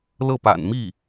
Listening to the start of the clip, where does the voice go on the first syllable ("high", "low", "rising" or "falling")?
falling